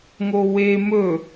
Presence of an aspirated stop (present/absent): absent